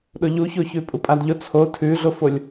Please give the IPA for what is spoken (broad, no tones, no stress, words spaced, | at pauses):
ɗʊʎuço çʉpʼupʼadʎʊ t͡sʰo tʰʉɮofolʲ